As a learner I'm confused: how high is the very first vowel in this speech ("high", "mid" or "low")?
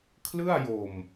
high